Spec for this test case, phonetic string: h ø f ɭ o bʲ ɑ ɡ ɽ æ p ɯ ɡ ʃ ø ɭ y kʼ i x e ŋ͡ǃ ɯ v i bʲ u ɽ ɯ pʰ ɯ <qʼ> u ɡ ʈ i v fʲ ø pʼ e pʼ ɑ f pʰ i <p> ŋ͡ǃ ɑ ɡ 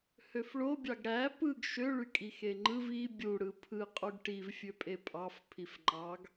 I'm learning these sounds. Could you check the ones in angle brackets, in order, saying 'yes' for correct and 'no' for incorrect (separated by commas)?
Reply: yes, no